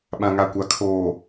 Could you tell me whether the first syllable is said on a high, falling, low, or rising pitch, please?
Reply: low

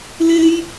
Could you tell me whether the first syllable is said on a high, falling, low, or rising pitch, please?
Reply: high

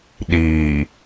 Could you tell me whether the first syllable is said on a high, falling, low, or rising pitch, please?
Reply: low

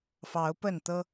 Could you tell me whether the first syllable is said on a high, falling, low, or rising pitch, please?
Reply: rising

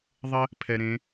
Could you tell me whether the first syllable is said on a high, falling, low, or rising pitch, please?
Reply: high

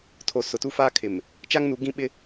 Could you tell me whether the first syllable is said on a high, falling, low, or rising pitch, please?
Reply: low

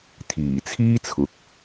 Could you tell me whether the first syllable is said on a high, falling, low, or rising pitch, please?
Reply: low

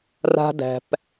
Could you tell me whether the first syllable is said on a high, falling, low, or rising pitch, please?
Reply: high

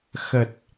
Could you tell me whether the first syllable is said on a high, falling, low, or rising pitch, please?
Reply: low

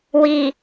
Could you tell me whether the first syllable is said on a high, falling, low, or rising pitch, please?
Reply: low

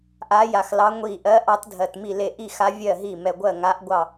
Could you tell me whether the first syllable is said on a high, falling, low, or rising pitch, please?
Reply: rising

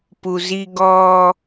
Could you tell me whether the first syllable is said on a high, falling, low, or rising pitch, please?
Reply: low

